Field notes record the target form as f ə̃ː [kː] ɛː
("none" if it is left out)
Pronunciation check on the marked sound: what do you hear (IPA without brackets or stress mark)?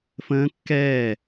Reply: kː